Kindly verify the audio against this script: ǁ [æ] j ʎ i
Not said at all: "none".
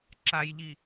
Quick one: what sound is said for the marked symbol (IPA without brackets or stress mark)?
a